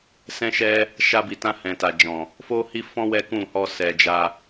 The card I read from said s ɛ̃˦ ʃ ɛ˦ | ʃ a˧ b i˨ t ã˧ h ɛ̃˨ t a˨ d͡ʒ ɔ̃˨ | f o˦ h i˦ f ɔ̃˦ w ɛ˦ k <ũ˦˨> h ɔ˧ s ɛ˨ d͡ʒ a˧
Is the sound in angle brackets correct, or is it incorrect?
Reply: correct